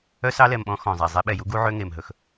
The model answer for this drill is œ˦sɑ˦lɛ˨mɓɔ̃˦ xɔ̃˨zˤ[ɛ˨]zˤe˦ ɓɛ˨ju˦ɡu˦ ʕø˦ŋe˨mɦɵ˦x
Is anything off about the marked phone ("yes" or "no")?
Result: yes